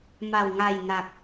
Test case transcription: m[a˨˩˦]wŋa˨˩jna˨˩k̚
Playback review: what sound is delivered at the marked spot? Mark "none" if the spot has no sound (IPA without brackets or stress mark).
a˨˩